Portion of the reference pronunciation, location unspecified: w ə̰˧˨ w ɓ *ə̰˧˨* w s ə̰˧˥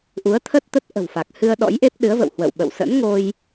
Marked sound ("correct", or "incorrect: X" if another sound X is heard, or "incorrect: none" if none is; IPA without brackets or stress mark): correct